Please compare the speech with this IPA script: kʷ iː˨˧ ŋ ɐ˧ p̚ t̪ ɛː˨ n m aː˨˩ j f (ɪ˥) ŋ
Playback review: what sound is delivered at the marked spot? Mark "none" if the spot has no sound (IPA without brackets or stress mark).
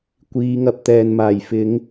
ɪ˨˧